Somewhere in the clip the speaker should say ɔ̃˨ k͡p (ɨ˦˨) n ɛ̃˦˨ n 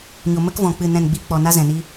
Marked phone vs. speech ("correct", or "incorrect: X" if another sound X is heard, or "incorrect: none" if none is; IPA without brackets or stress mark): correct